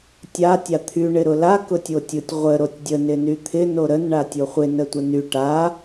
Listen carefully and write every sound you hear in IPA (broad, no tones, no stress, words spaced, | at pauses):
tʲa tʲat̪ʰy ɳɪɾʊla kʊtʲotʲʊtʲ ʁʷə ɾotʲdʲə nɪnyt̪ʰɪ noɾən ɳatʲoχʷɪ nətʷəny ʈa